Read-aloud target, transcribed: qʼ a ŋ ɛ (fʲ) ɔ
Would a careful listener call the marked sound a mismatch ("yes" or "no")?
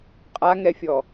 no